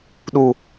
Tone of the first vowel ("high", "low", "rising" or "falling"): low